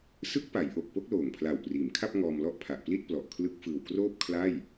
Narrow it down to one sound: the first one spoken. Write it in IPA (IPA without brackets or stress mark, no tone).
s